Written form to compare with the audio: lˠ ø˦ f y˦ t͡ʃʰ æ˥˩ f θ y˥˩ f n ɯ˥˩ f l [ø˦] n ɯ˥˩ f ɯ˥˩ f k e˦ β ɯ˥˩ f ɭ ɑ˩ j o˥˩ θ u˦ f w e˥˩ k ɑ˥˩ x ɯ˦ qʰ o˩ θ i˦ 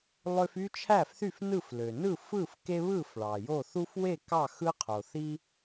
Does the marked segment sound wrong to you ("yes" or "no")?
yes